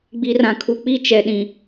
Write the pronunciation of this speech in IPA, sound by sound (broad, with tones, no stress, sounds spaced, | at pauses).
ɡ͡b i˨ r ã˨ kʰ u˨ k͡p i˦˨ t͡ʃ ɛ˨ ɗ ĩ˨